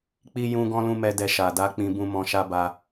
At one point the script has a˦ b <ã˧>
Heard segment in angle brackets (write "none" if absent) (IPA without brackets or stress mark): a˧